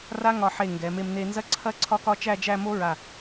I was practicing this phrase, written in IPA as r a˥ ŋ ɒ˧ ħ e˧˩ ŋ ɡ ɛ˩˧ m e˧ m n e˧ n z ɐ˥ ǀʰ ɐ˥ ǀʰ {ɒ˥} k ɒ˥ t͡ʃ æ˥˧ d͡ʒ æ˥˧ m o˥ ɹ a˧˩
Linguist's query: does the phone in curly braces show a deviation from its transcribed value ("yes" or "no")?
no